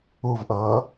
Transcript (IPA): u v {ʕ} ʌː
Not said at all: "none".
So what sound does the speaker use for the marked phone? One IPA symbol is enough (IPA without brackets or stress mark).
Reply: ʔ